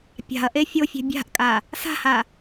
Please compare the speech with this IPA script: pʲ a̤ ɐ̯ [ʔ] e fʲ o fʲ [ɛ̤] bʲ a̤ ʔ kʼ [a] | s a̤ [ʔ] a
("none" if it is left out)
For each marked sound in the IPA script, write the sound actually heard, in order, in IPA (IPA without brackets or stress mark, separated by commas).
ʔ, ɛ̤, a, h